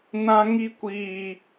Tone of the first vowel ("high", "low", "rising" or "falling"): high